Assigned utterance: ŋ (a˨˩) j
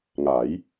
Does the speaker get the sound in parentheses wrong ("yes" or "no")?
yes